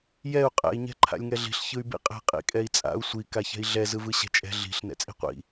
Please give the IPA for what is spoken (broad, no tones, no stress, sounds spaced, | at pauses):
j ɛ u̯ qʼ ɛ̰ i̯ ɲ ɛ̤ ǃʰ a̰ lʲ ŋ ɛ ɮ i̤ ɬ ç ɯ y̯ b ḭ qʼ ɛ̤ qʼ ḭ kʼ ɛ i̯ t͡sʼ a̰ u̯ sʷ i k a ç ɛ̤ i̯ ɮ ɛ z ɯ v ɯ ɕ ɛ̤ t͡ʃʼ ɛ̤ ɮ i̤ ɬ n ɛ̰ t͡sʼ i̤ qʷ ḭ